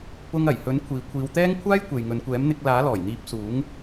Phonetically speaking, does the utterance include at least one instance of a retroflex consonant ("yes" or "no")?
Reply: no